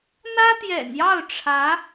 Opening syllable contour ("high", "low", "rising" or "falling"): high